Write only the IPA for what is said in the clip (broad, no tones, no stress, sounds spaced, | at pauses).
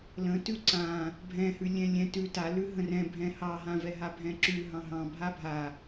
l ə̃ t ʉ ǀ ã | bʱ ɛ̃ h ʉ lʲ ɛ̃ lʲ ɛ̃ t ʉ t a l ʉ ɦ ə̃ r ɛ̃ bʱ ɛ̃ h ɑ ɦ ã v ɛ ɦ a bʱ ɛ̃ ǁ ʉ ɦ ɑ̃ ɦ ɑ̃ bʱ a bʱ a